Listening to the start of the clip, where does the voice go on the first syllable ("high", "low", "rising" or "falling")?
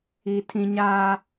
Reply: high